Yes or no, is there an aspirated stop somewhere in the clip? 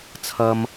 yes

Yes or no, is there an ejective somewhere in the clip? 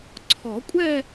yes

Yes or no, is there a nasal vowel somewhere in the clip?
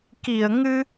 no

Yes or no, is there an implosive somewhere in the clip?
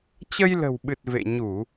yes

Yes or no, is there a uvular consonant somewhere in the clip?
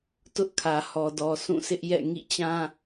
no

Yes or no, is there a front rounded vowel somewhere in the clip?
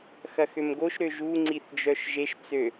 yes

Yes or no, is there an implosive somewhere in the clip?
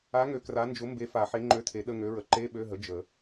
yes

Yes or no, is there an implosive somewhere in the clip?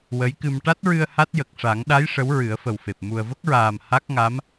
yes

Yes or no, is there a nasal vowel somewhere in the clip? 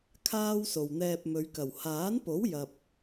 no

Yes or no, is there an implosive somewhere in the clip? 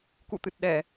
yes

